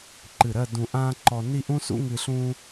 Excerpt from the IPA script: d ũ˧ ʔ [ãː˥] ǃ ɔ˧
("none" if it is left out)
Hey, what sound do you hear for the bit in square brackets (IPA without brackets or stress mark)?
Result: ãː˥